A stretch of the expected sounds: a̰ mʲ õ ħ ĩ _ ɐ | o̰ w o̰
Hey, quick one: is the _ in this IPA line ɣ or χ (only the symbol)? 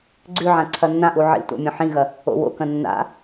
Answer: ɣ